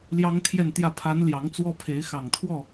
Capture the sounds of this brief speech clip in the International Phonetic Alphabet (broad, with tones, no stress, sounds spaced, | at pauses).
l j ɑ˥ ŋ t̪ʰ j ɛ˥˧ n t̪ j ä˥˩ pʰ a˧˥ n l j ɑ˧˥ ŋ t͡s w ɔ˥ pʰ e˧˥ ɪ̯ x ɑ˨˩ ŋ t̪ʰ w ɔ˥˩